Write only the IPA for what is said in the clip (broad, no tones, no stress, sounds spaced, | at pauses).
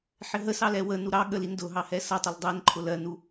ħ ɪ ɦ ə s ɑ l ɛ w ə n u ɾ ɑ ɠ ə l i n d ʊ ɦ ɑ h ɛ s ʌ tˤ ɪ l dˤ ɛ n ǃʰ ʊ l ɜ n u